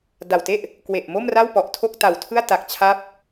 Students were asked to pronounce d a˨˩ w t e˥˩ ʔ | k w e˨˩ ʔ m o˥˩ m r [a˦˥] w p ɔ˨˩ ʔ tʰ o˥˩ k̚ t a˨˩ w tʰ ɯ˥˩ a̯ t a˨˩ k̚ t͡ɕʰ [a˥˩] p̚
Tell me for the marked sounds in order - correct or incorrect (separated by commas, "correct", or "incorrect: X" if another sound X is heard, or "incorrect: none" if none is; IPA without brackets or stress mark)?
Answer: incorrect: a˥˩, incorrect: a˦˥